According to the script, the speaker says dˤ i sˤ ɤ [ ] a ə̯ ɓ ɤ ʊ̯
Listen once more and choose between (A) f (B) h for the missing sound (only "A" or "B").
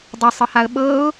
B